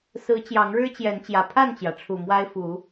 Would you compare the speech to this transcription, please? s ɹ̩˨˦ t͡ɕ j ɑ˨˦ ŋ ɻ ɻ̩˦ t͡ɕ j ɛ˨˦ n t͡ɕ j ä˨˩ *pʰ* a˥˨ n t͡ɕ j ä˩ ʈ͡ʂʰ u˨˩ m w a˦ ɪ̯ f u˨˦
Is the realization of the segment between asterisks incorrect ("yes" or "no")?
no